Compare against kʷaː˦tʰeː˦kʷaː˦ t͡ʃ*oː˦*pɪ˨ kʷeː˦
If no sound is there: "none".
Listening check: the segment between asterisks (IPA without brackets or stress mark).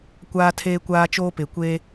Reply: oː˦